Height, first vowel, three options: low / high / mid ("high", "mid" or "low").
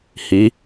high